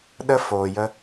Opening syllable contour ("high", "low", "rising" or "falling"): high